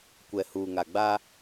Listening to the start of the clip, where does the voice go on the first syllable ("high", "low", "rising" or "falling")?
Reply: low